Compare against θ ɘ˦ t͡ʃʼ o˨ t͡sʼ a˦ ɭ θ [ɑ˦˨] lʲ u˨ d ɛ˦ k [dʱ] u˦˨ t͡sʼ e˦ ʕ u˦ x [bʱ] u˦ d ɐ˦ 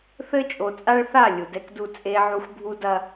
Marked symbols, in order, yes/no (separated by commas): no, no, yes